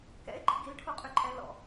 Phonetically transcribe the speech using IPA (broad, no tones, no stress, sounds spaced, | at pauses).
k ɛ̰ ɪ̯ ɡ͡ǃ ḭ ɡ i l ʈʰ o qʼ y ǃʼ ɛ l ɔ̰